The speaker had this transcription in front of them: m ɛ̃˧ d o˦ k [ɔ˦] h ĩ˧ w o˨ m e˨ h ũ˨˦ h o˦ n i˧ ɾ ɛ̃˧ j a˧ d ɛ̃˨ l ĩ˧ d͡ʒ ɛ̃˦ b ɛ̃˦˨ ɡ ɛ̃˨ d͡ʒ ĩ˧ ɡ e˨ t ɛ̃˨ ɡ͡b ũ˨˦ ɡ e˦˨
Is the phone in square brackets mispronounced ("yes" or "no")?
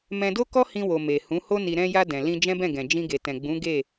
no